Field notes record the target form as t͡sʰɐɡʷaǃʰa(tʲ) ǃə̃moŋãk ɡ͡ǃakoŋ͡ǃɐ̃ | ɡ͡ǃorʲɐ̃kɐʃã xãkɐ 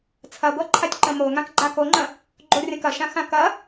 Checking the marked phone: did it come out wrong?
no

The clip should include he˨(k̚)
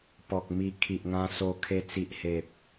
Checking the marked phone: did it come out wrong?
yes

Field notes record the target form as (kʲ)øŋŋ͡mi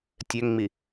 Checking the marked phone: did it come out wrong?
yes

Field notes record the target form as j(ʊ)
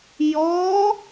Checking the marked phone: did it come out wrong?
yes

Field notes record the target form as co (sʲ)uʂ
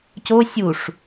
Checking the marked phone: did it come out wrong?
no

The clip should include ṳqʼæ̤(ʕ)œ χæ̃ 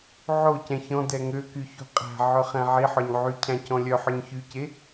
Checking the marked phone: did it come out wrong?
no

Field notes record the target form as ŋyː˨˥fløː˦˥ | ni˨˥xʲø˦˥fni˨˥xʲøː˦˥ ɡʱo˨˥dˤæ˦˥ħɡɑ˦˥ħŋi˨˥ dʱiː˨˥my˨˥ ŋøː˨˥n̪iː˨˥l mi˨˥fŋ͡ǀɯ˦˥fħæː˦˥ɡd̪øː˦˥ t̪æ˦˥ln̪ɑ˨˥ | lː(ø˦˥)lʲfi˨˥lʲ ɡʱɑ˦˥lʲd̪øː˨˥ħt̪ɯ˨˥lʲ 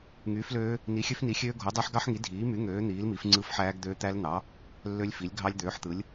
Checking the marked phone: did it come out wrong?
no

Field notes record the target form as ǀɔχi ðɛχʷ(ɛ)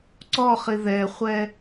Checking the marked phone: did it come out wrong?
no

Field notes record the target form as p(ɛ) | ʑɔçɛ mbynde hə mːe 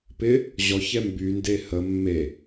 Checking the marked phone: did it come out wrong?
yes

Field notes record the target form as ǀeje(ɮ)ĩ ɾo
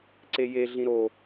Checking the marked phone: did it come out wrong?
no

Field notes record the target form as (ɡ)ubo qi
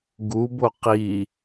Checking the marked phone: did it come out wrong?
no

